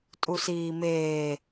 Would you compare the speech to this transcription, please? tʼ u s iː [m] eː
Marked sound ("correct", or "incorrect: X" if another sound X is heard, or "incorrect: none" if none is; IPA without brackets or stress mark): correct